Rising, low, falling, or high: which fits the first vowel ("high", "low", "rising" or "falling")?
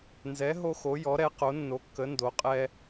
rising